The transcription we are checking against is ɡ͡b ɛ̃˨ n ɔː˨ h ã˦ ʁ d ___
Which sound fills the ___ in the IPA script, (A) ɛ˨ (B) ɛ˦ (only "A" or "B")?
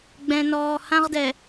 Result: A